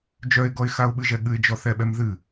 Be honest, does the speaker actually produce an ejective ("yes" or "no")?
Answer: no